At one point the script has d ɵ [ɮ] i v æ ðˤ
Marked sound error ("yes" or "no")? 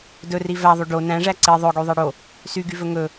yes